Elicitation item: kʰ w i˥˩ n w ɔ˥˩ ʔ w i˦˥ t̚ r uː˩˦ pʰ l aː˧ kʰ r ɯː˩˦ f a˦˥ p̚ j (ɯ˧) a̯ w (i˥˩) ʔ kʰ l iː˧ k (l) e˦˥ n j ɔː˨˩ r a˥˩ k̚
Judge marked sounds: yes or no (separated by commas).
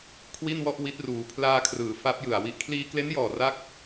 no, no, yes